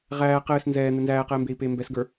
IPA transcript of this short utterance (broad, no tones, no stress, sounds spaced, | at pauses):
ʁ æː q ɘː s n z ɛː n̪ ɘ n z æː q ɛː m b eː i̯ p eː m b ɛ s ɡ ə˞